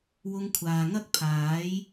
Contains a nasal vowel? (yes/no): no